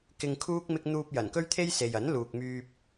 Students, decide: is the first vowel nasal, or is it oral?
oral